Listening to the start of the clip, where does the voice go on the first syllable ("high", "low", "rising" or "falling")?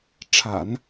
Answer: low